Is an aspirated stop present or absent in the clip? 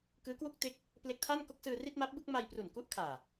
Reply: present